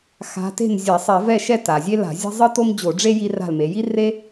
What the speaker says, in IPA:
x a̤˨˦ t e̤˥˨ n zʲ a˧˩˧ sˤ ɛ˧˩˧ v ɛ˥˨ ʃ ɛ˥˨ t a˩ zʲ e˥ l a̤˧˩˧ zʲ e̤˥ zˤ ɯ˥ t o˥ m d͡ʑ o˧˩˧ ɖ͡ʐ e˥ j i˥ r a̤˥˨ l m e˨˦ j i˥ r e˥

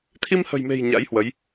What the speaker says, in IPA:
t̪ʰ i˧ m h ə̤˨˩ j m e̤˨˩ j ɲ a̰˧˥ j h w ə˨˦ j

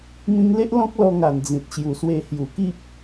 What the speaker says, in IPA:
m ĩ˧ ŋ l e˦ ʔ l ɔ̃˦ k̚ l ɔ˧ ŋ a˨˩ n d͡z ĩ˨ t̚ ɕ j u˨˩ s w e˧ h j u˨˩ k i˦ p̚

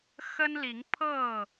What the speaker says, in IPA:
x ə˦ n l i˨˦ ŋ pʰ ɤ˥˨

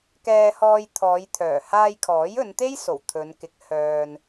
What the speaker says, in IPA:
k ɛː˧ h ɔː˧ j t̪ʰ ɔː˨˧ j t̪ʰ œː˨˩ h aː˧ j kʰ ɔː˨˥ j ɵ˨˧ n t̪ e˥ j s o˨˩ w t̪ʰ ɵ˨˧ n k ɪ˨˥ k̚ h œː˧ n

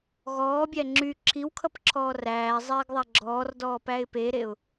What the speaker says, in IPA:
ɣ ɔː bʲ æ ŋ͡ǁ y ǁʰ i w kʰ ʌ p ǁʰ ɔː r æː zˤ eː ɡ ðˤ æ ɡ͡ǁ ɔː r d ɔː p æ ɪ̯ p e ɾ e ʊ̯

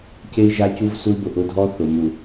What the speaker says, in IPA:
c e˦ i̯ ʒ a˦ c u˦ v s u˦ i̯ b ʊ˦˨ ʔ ʊ˦ dʱ ɔ˦ θ ʊ˨ m u˨

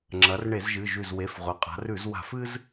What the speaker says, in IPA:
ŋ͡ǁ ɐ˩˧ r ɳ e˧˩˧ z ʒ ɨ˩˧˩ ʒ ʉ˧˩ z w e˩˧˩ f ʁʷ ɐ˩˧ qʼ a̤˩˧ r ʉ˧˩˧ z w a̤˧˩˧ f ɨ˦ z

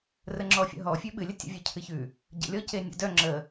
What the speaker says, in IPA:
r ə ŋ͡ǁ ɔ fʲ ə̰ ɦ ɔ fʲ ʉ ɓ ɨ lʲ ə tʲ ə̰ vʲ œ cʰ ɨ ç ʉ | ɟ ə̰ lʲ ɔ c e nʲ ə̰ d œ ŋ͡ǁ ə

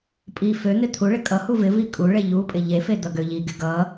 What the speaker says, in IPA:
pʼ i f ø n̪ ɪ t̪ʰ u ɭ ɪ kʼ ʌ h u v ɪ v i kʼ u ɭ e ʎ u pʼ ɪ ʎ e f e d̪ ʌ ɡ ø ʎ i ɡ ɪ ɡ ʌ

